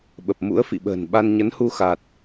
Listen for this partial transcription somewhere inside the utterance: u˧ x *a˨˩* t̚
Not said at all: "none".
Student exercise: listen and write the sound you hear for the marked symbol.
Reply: a˨˩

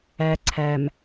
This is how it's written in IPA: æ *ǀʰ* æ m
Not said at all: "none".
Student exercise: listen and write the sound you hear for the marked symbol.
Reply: ǀʰ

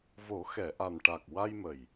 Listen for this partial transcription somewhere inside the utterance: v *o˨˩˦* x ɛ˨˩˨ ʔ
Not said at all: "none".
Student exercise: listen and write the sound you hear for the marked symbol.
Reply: o˨˩˦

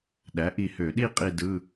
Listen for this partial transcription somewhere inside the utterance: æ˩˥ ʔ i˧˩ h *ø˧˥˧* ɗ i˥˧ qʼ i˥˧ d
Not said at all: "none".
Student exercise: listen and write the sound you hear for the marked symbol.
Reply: ø˧˩˧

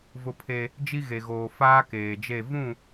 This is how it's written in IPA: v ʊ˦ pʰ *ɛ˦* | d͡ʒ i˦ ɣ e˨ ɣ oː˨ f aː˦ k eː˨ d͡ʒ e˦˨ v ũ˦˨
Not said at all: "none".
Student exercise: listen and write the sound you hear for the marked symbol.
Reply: e˦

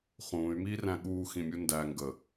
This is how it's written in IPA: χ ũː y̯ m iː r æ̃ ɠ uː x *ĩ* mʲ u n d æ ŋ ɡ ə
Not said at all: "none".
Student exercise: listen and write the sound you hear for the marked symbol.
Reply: ĩ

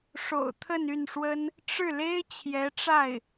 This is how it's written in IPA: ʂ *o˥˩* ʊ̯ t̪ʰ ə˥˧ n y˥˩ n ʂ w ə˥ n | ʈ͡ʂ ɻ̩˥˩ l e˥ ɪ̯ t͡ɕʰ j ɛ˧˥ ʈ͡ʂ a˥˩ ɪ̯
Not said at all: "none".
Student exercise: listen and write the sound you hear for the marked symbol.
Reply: o̰˨˩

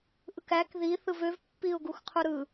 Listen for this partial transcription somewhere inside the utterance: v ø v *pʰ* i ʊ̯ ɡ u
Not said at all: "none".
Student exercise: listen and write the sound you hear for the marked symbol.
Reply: pː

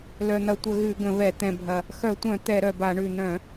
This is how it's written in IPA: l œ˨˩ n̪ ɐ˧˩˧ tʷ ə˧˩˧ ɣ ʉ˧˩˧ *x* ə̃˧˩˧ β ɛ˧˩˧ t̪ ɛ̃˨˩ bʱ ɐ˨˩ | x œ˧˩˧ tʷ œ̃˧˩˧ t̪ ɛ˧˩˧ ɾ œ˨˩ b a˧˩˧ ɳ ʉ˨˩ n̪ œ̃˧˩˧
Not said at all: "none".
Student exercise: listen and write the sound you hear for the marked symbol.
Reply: ɡ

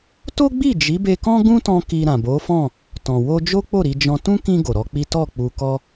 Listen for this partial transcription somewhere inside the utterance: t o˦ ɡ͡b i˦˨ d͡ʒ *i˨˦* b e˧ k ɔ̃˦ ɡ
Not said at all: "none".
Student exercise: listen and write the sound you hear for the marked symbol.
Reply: i˨˦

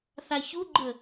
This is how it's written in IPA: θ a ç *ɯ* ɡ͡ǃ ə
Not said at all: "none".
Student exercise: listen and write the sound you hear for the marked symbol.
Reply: u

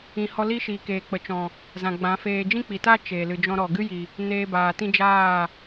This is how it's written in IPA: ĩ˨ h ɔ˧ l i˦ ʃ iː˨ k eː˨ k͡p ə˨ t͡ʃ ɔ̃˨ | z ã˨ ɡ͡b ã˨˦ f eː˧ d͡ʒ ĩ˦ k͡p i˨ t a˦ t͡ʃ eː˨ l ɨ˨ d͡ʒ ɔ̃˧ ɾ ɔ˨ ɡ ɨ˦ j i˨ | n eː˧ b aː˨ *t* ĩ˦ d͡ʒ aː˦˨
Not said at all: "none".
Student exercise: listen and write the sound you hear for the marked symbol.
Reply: t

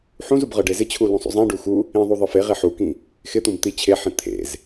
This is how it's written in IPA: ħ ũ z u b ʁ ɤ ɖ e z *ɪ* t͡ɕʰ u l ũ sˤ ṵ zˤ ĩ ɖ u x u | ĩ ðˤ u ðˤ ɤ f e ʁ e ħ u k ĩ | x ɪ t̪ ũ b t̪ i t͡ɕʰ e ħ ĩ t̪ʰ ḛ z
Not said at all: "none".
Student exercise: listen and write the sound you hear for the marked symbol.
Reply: ɪ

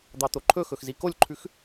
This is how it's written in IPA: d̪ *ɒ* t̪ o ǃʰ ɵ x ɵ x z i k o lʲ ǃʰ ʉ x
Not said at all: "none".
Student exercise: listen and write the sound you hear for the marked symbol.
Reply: ɑ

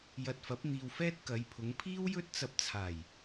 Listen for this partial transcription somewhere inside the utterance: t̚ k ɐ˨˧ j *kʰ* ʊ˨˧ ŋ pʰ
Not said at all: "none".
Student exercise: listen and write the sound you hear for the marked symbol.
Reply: pʰ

